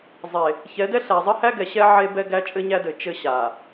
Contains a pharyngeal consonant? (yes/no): yes